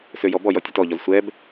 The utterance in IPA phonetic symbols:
s ø j ɔ b ɔ j ɔ tʲ ø t ɔ ʎ ɔ z sʷ ɛ b

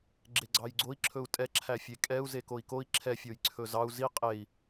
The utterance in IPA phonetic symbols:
ɡ͡ǁ e ɡ͡ǀ ɑ j ɡ͡ǀ o i̯ ǁʰ ɵ u̯ tʼ ɛ ǁʰ æ fʲ e kʼ ɛ u̯ z e k o i̯ k o i̯ ǁʰ ɛ fʲ o j ǀʰ ɵ z ɑ u̯ z i qʼ e i̯

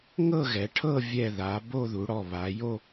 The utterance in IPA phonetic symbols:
ŋ ɤ˥˧ ɣ ɛ˩˧ ʈʰ ɤ˥˧ vʲ ɛ˥˧ ð a˩˧ b o˥˧ ð u˩˧ ɽ ɔ˨˩ β a˩˧ j o˥˧

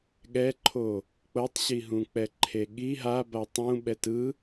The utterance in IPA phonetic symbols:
ɠ ɛ ǃʰ o | k͡p ɤ tˤ ɕ i ɦ ũ k͡p ɛ ǃʰ e ɠ i ɦ a b a tˤ ũ ɓ ɛ t ɯ

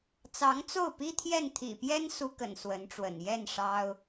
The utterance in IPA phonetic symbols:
t͡s ɑ˧˥ ŋ t͡s o˥˩ ʊ̯ p i˥ t̪ʰ j ɛ˥˩ n t̪ʰ ḭ˨˩ p j ɛ˥ n s u˥ k ə̰˨˩ n s w ə˧˥ n ʈ͡ʂ w ə̰˨˩ n j ɛ˥˩ n ʂ ɑ˥ ʊ̯

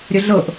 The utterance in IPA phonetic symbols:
ɾʲ ə ɮ ɤ ʔ

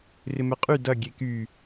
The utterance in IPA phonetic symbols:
r ɪ m ɛ qʼ y d ɐ ɡʲ e k y

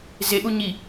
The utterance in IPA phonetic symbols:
z e ʔ u ɲ i

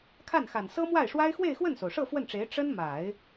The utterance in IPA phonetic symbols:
kʰ a˥˩ n x a˨˩ n s ɤ˥ m w a˥˩ ɪ̯ ʂ w a˥ ɪ̯ x w e˥˧ ɪ̯ x w ə˥˩ n s o˩ ʊ̯ ʂ ɤ˥˧ f w ə˥˩ n ʈ͡ʂ e˧˥ ɪ̯ ʈ͡ʂ ə˥ n m a˨˩˦ ɪ̯

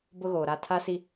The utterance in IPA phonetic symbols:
b ʊ˦ ɣ oː˨ ɾ a˦ tʰ a˦ s i˦

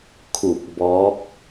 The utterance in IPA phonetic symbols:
kʰ u˧˩ k̚ b ɔː˧˥ k̚

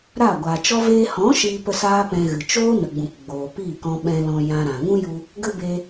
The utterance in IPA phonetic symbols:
ɾ a˦˨ ɡʷ aː˨ t͡ʃ ɔ˦ v eː˧ h ɔ̃˨˦ ʃ iː˧ p ə˧ s aː˦ p ɛ̃˧ ɣ ɨ˨ t͡ʃ oː˦ n ə˨ ɡ͡b ũ˨ k ɡ͡b oː˨ p i˦˨ k ɔ̃˧ ɓ ɛ̃˧ l ɔ̃˧ j ã˧ ɾ ã˨ ŋ ũ˦ j u˧ | ɡ ə˦ b e˧

